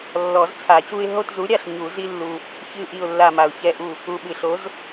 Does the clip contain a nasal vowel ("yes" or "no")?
no